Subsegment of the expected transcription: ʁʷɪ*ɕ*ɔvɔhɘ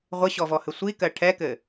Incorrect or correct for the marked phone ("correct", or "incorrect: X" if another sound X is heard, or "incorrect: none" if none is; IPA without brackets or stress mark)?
correct